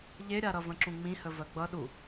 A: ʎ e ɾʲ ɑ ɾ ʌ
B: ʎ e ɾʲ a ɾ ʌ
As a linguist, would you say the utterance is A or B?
B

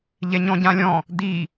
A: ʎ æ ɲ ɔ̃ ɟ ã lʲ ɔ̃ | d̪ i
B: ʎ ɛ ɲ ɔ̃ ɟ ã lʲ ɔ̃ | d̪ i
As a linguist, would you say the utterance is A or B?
B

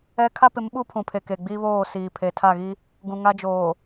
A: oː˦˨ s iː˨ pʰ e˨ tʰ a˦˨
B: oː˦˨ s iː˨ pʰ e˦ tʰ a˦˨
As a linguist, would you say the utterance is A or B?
A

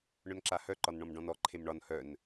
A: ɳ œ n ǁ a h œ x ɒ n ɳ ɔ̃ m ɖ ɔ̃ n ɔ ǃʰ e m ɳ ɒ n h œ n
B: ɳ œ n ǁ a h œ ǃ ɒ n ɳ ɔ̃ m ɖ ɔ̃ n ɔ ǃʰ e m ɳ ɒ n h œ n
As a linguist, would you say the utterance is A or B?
B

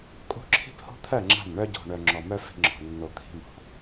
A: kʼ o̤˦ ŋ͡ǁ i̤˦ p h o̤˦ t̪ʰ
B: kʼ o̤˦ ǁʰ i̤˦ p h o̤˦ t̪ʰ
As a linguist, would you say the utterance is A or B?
B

